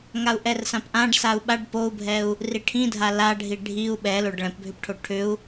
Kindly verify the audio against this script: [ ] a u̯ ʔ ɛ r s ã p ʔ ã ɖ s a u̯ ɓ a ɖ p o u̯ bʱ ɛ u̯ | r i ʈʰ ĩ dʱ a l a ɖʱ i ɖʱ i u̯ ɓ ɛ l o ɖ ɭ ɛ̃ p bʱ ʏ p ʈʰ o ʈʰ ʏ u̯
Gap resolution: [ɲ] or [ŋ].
ŋ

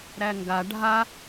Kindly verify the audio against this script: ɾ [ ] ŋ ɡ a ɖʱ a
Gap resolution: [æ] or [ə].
æ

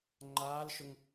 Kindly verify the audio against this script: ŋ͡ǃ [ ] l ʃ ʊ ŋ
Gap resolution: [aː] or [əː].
aː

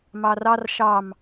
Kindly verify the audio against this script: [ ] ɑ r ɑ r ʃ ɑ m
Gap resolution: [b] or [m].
m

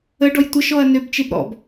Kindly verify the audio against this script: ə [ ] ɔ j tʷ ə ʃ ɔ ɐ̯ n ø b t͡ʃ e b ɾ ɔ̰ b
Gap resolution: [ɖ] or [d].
ɖ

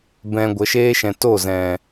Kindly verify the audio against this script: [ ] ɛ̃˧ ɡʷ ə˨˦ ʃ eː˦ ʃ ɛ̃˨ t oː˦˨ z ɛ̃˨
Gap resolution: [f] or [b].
b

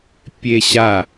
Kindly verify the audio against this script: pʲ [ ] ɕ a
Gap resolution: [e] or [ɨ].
e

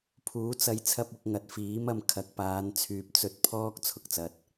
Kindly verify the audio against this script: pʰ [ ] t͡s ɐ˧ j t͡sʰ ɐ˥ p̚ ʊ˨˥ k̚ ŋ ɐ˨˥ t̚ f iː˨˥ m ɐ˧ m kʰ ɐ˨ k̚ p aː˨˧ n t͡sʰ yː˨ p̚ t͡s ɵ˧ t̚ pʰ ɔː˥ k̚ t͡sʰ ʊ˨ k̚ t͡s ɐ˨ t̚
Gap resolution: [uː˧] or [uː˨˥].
uː˨˥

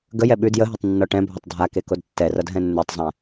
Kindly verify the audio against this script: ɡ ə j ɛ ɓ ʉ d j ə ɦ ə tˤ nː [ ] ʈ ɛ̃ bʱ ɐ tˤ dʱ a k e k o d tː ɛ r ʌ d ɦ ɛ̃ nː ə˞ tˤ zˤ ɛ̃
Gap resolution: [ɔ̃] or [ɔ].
ɔ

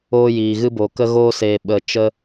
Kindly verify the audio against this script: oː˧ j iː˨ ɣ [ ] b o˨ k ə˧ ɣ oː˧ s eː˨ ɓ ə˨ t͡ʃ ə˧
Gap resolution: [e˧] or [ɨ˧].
ɨ˧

